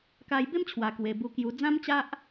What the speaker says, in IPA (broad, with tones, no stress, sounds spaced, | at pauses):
k a˧ j b e˦ m t͡ɕʰ w a˨˩ k w e˨˩ b u˧ k j u˧ d͡z ã˦ m t͡ɕ a˦ ʔ